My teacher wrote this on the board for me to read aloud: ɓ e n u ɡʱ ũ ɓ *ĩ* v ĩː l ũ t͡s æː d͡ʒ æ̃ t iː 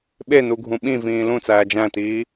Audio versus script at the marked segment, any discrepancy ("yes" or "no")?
no